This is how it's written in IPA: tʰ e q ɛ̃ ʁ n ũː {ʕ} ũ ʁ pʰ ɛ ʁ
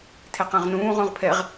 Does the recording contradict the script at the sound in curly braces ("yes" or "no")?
yes